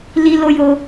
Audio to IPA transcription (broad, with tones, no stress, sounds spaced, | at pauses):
l i˧ l o˧ j o˧